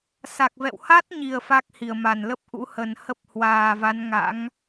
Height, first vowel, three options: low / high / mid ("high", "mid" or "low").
low